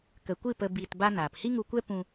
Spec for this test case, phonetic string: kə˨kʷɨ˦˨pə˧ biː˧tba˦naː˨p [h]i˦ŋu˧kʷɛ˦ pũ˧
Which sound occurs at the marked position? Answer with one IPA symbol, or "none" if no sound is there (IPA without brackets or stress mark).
h